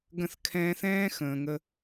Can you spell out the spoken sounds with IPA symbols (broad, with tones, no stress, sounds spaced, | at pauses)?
ɡ ə̃˦˨ θ kʰ ɛ̃ː˧ θ ɛ̃ː˦ x ə̃ː˨ ŋ ə˧